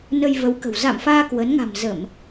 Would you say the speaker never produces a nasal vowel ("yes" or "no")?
yes